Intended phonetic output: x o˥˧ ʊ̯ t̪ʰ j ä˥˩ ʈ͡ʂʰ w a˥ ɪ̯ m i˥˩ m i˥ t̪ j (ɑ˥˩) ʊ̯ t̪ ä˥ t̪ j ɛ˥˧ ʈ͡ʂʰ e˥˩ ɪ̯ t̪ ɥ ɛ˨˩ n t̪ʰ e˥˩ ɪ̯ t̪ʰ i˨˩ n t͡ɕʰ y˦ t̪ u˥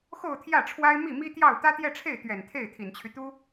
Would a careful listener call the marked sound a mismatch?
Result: no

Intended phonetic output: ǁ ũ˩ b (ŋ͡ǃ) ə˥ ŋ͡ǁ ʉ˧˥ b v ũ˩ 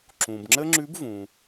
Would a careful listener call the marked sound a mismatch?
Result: yes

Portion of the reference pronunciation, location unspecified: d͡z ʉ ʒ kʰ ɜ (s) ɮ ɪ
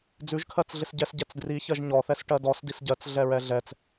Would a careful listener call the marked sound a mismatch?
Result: yes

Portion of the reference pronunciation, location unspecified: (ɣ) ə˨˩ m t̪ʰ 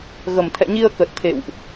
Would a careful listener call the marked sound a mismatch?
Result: no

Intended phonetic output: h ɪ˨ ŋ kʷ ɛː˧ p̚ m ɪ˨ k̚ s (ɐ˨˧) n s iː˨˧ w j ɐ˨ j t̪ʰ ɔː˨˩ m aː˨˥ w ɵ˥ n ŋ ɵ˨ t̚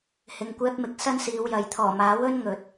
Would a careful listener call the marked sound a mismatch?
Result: yes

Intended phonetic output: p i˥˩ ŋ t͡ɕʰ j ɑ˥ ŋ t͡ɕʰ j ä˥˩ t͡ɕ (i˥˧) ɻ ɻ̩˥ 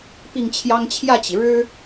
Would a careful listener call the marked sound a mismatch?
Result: yes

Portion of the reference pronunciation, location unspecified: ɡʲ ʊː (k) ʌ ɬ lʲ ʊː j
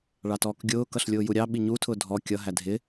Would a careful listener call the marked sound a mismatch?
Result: no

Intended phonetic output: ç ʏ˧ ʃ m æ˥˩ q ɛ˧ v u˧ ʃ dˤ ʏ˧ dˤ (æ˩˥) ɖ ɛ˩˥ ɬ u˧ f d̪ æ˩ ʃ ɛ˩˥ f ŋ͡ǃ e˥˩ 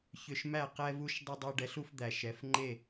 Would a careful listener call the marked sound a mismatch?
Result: yes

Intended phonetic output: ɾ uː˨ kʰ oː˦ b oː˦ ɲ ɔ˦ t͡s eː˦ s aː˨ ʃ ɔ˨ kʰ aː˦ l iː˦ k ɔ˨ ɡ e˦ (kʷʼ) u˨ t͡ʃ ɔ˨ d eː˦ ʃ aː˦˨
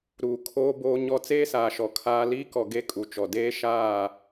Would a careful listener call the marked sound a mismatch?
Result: yes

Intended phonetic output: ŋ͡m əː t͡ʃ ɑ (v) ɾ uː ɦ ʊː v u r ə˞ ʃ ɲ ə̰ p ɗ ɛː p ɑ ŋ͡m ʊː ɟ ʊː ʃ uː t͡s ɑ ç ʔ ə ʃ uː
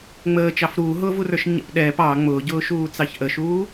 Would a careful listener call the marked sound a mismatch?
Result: yes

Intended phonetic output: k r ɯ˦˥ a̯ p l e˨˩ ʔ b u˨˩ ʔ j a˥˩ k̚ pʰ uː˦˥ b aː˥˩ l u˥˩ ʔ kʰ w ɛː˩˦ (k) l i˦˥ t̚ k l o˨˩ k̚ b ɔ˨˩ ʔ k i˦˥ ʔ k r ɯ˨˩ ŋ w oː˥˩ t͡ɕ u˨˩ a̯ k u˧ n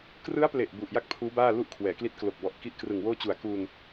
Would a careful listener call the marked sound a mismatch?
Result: no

